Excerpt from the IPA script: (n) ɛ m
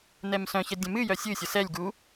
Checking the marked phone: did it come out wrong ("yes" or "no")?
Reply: no